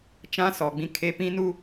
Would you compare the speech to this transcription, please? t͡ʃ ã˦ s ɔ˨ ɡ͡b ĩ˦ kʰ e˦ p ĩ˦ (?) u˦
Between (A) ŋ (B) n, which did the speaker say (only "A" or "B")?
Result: B